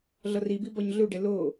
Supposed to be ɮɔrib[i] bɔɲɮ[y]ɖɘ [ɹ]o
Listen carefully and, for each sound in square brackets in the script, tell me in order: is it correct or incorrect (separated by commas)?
correct, incorrect, incorrect